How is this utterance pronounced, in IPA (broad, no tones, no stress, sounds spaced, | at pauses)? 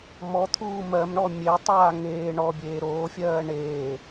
m ɔ t̪ʰ uː m ɜ m ɳ ɔ mʲ e tˤ aː ŋ eː ɳ ɔ bʲ eː ɾ oː fʲ ɜː ɳ eː